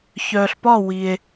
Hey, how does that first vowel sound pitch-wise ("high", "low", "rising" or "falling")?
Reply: low